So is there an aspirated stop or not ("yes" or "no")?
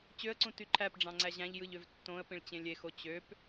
yes